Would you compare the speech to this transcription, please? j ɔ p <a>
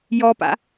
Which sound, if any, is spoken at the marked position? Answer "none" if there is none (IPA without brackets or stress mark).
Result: a̰